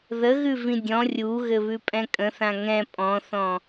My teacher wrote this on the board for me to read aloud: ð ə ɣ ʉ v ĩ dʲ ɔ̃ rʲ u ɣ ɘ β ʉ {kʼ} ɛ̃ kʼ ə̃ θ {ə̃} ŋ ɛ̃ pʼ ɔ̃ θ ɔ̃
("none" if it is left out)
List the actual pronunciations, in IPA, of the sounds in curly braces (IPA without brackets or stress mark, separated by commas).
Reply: pʼ, ã